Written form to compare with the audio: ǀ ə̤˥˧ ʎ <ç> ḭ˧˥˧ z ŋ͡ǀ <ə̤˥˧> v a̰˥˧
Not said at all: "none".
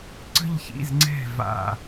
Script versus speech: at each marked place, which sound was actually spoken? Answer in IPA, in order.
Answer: ç, ɛ̤˥˧

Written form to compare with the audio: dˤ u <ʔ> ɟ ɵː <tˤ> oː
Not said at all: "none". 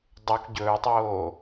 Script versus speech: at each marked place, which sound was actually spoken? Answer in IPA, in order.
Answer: k, tˤ

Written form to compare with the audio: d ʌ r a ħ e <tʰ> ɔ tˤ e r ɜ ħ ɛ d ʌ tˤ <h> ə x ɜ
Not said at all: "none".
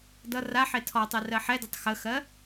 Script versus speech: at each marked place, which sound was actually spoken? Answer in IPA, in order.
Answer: tʰ, x

